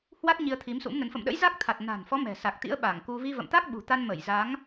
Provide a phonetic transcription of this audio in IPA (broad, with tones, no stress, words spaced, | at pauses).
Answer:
hwa˦˥t̚ ɲi˧ə̯t̪ʰi˨˦msṵ˧˥mnə˨˦n fə̰˧˨mɗə̰˧˥j za˦˥k̚t̪ʰa˨˩t̚ na̤˨˩nfɔ˨˦ mɛ̤˨˩sa˨˩k̚t̪ḭ˧˥ə̯ ɓa˧˩ŋku˧ vi˧və̰˧˨mt̪a˦˥k̚ ɓṳ˨˩t̪a˧n mə˧˩j za˨˦ŋ